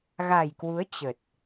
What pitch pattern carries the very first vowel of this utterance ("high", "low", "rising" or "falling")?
low